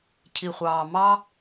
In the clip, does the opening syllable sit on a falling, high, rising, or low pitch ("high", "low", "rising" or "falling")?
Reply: low